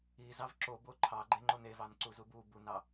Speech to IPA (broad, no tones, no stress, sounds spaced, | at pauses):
i z ɑ v ǁ o b o ǃʰ ɑ ɡ͡ǃ e ŋ͡ǃ o n e v ɑ n ǀ u z u b u b u n ɑ